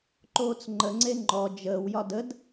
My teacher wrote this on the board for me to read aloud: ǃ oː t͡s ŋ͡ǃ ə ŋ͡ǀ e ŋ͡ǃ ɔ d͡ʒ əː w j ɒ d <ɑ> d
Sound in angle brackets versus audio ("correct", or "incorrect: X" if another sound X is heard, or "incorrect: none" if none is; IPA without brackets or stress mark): incorrect: ə